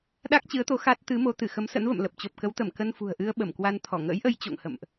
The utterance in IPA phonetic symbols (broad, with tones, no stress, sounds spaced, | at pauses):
ɗ a˦˥ k̚ t͡ɕ ɨ˨˦ ə̯ t̪ o˨˦ x a˦˥ t̚ t̪ ɨ˨˦ m o˨˦ t̪ ɨ˧˩ x ə˨˦ m s ə̰˧˥ n v ə̰˧˨ m l ə˨˩ p̚ t͡ɕ o˨˩ p̚ k ə˨˦ w t̪ ə˧˩ m k ə˧ n f ṳ˨˩ ə̯ ʔ ɨ˧ ə̯ ɓ ə˧˩ m k w a˧ n t̪ʰ ɔ˧˩ ŋ ə̰ː˧˥ j ʔ ə˧ j t͡ɕ o̰˧˨ ŋ h ə̰˧˨ m ʔ